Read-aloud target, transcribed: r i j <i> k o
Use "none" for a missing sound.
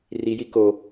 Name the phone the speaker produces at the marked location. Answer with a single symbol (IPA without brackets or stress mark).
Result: i